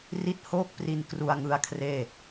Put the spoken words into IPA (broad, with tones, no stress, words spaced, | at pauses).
ri˦˥t̚ hoː˥˩k̚pri˧n kru˧a̯ŋɯ˦˥a̯kʰreː˥˩